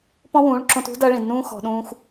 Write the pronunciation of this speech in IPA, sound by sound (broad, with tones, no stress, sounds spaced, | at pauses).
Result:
p ɔ̃˦ w ũː˨˦ ɭ ǁ õ˧ t ṳ˦ d ɐː˦ ɭ ĩ˨ d n ũː˦ x ɔ̤˨ ɗ ũː˧ x